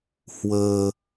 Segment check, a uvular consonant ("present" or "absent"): absent